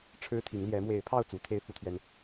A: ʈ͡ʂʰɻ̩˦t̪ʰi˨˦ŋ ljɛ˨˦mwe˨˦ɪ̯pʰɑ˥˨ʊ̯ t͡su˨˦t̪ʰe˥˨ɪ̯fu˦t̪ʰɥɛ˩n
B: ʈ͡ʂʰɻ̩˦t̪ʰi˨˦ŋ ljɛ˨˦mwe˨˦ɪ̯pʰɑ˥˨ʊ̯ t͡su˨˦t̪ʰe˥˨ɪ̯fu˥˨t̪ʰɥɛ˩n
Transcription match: B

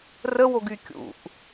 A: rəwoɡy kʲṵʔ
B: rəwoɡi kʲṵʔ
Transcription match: A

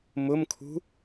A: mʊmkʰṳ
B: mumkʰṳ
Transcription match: A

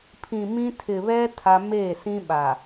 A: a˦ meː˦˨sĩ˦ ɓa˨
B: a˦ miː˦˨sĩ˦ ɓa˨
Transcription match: A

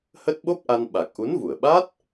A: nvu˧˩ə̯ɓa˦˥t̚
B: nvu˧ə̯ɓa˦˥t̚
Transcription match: A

